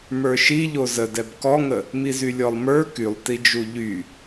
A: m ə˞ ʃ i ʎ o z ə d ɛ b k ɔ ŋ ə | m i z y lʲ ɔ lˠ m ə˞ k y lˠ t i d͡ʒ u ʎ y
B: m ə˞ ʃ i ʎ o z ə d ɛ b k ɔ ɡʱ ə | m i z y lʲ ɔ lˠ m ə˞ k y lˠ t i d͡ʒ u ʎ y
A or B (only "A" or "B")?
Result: A